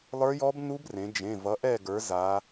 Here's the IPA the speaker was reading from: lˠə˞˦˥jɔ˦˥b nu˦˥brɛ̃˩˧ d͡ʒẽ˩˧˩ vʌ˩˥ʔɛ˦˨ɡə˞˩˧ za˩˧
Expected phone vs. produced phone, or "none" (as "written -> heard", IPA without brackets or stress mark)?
ɛ̃˩˧ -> ẽ˩˧